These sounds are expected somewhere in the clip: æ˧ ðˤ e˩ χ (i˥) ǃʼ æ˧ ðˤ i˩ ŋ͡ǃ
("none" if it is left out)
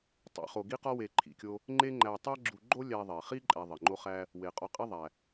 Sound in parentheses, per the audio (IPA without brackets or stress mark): i˥